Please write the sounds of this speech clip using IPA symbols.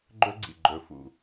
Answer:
ɡ͡ǃɵ˦ɡ͡ǀḭ˨ ɡ͡ǃɵ˨fṵ˨

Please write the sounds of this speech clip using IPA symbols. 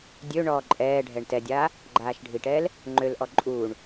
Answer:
dʲøɳɔː ǃʼɛːɖʱɛɳ tɛdʲaː | ɡ͡ǃaːʃɖʱiʈɛːl | ŋ͡ǃølʔɔ ǃʼuːɳ

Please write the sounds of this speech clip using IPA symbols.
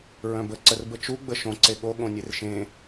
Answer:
ɹœ̃bə ǀərbət͡ʃu ɡ͡bəʃõ ǀeɠo ɠõnʲerʃẽ

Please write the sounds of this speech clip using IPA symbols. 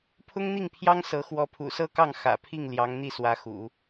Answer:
pʰʊ˥ŋn̪i˥˩ŋpʰjɑ˥ŋ sɤ˧˥ xwɔ˧˥pʰṵ˨˩sɤ˥kɑ˥˩ŋ xä̰˨˩pʰi˥˩ŋ ljɑ˧˥ŋn̪i˥˩ swä˧˥xṵ˨˩˦

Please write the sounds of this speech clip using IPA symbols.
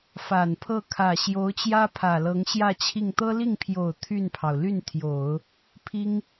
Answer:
fa˨˩npʰɤ˥˩ kʰä˨˩ ɕjo˧˥ʊ̯t͡ɕjä˥pʰä˨˩ lɤ˧˥ŋɕjä˥˧t͡ɕʰi˥˩ŋ t̪ɤ˥li˥˩ŋpʰjo˨˩ʊ̯ t̪ʰy˥˩npʰɑ˩ʊ̯ ly˥˩nt̪ʰjo˨˩˦ʊ̯ | pʰi˥ŋ

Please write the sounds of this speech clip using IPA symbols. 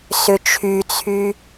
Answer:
sʏt͡ʃʰyt͡sʰy

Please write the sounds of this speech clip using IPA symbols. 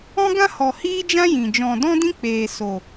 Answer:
ɔ̃˦ɡã˦hɔ˨ hiː˦d͡ʒã˦jĩ˨ d͡ʒɔ̃˨dɔ̃˦dĩ˦k͡peː˨ so˨

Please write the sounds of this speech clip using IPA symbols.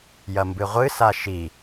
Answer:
jɐmbɨʁʷɨ saʃi

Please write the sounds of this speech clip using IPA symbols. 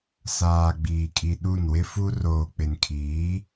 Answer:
saː˨ɡ͡biː˨kʼi˨ ɗu˦˨nwɪ˦fu˦ roː˨k͡pɪ˨nkʰiː˨˦

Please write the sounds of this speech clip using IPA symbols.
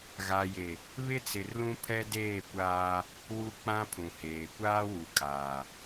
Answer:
ɣa˨je˨ | βɪ˦t͡sɪ˨rlũ˦ pʰɛ˦deː˦˨kʷaː˦ | wu˦k͡pã˦pʰũ˨heː˨ kʷaː˦wu˨kʼaː˨

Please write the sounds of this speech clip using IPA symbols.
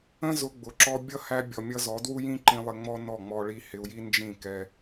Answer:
ə̃˦ zʊ˧ɡ͡bʊ˨ ǁɔ˧bʲʌ˦ hæ˧ bʲɔ˨mʲʌ˧zɔ˨˦dwu˦ jĩ˦ǃĩ˧ lˠɪ˧ŋ͡mɔ˦nɔ˦˨ ŋ͡mɔ˧ɭi˧ hɪ˧u̯ji˦ nd͡ʒĩ˦˨ kɛ˧

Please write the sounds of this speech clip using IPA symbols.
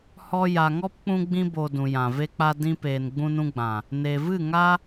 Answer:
hɔ˧ja˨ŋɔ˦p k͡pũ˧ɡ͡bĩ˧bo˨ dũ˨ jã˨ve˦k͡pa˦ dĩ˧peː˨n ɡ͡bũ˦nũ˦ ɡ͡bã˨ | ne˨vɨ˦˨ ŋa˦

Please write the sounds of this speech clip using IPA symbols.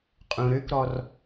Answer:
qʼũɾøkɾɔr

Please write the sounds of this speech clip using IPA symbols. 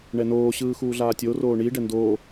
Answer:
ɳɛnoː ɕɯːxuːɮaːtʲo roːɳi ɖɛndoː

